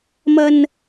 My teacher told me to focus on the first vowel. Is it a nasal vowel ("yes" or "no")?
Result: no